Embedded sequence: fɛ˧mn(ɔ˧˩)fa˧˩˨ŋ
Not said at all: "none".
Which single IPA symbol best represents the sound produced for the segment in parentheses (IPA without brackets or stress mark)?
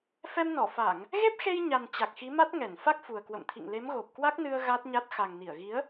ɔ˧˩